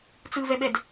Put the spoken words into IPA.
t͡s ɯ v ɛ ɓ ɛ d

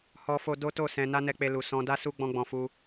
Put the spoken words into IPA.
h ɔ˧ f o˧ d o˦ t o˦˨ s ɛ̃˧ n a˦ n ɛ˧ k͡p e˧ l u˨ s ɔ̃˧ d a˦ s u˦ ɡ͡b ɔ̃˦ ɡ͡b ɔ̃˧ f u˦

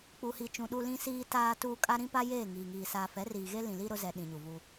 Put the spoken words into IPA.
k͡p u˨ h i˨ t͡ʃ ũ˨ ɗ u˨ l ĩ˨ s iː˨ t aː˨ t uː˨ kʼ a˦ ɾ ĩ˦ p a˦ j eː˦˨ ŋ iː˨ ŋ iː˨ s aː˨ f ɛ˨˦ r iː˨ ɣ e˦ l ĩ˨ l i˦ ɾ ʊ˦ z ɛ˨ ɗ ĩ˨ ɲ u˨ v u˦

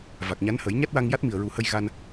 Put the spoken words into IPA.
v a˨˩ k̚ ɲ a˧˥ n h ə˨˩˦ j ɲ a˦˥ t̚ w a˧ ŋ j a˦˥ t̚ m i˨˩ ə̯ ɹ u˨˩˦ h ə˧ j ɣ a˧ n

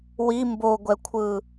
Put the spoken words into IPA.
w i m b o ɡʷ ɛ kʷʰ ɯ

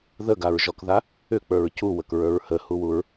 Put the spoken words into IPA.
ð ə ɡ a ɹ ʒ ɔ k ð a | ʏ k͡p ə˞ ɹ c u w ə k ɹ ə˞ ɹ h ə h u w u ɹ

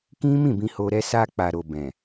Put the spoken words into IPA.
k ĩ˦ m ĩ˦˨ b ĩ˧ h o˧ ɾ ɛ˧ s a˧ k͡p a˨ ɾ o˨ b ɛ̃˨

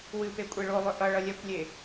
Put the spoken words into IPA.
w ɨ p e kʷʼ e ɭ o lˠ ʏ ʔ ʌ ɭ ʌ lʲ ɛ kʷ lʲ e

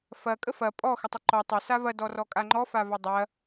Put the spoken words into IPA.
f ɐ kʼ ə f ɐ pʼ ɔ x ə tˤ ə ǃ ɔ tˤ ɐ s a v ɐ d ɔ r ɔ kʼ a ŋ͡ǃ ɔ f a v ɐ dˤ ɐ

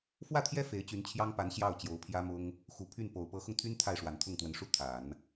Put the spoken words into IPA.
f w ä˥˩ t̪ʰ j ɛ˥ f e˧˥ ɪ̯ t͡ɕ y˧˥ n t͡ɕʰ j ɑ˥ ŋ p a˧˥ n ɕ j ɑ˥˩ ʊ̯ t͡ɕ j o˧˥ ʊ̯ pʰ j ä˥ m ʊ˥ ŋ | x u˨˩ pʰ y˥˩ n p o˨˩ ʊ̯ p ɤ˧˥ x ʊ˧ ŋ t̪ʰ y˥ n t̪ʰ a˥˩ ɪ̯ ʂ w a˨˩ n t̪ʰ ʊ˥˩ ŋ t̪ w ə˧˥ n ʂ u˥ t̪ʰ a˨˩˦ n

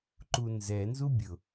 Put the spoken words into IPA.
ǃ u n z ɛ n z u bʲ ʊ

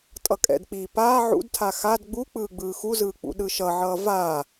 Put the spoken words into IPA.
tʼ ʌ kʼ ɛ̰ d k͡p iː p aː ʕ ṵ d tʰ a x a d ɡ͡b u k͡p ɯː ɡ͡b ɯː x u z ɯː k͡p ṵ ɗ ɯ ʃ ʌ ʕ ʌː v aː

